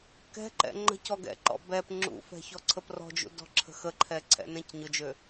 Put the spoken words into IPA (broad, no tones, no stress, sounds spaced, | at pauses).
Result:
k ɛ̤ ǃ ɛ̰ ŋ͡ǃ ə̤ c ɔ ɡ ɛ̰ ǃ ɔ̰ b ɛ p ŋ͡ǁ ṵ f ɛ̤ ç ɔ ǀʰ ə p r ɔ̤ d͡ʒ ṵ d ɔ̤ ǁʰ ə̤ x ə ǃʰ ɛ ǀʰ ɛ̰ n ɛ̃ c ɲ ʊ d͡ʒ ø